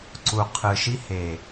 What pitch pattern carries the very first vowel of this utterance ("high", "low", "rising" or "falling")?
low